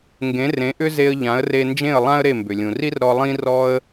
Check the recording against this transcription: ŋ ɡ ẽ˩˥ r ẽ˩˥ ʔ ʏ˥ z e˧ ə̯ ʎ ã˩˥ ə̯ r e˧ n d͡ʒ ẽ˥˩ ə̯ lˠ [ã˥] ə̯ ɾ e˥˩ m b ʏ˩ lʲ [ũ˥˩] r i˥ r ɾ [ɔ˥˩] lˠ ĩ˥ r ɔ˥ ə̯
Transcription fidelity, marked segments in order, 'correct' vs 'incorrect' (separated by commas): correct, incorrect, incorrect